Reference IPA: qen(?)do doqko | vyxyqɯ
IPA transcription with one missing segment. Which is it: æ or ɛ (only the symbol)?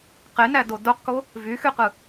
æ